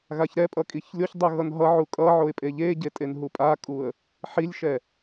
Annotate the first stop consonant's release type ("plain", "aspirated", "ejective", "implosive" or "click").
ejective